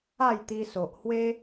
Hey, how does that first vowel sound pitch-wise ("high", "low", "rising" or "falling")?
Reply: falling